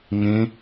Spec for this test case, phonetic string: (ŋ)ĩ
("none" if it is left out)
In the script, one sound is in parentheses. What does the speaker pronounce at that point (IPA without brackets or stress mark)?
ŋ